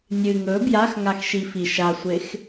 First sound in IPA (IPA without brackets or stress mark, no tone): nʲ